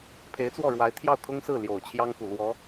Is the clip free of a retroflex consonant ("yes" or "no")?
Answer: no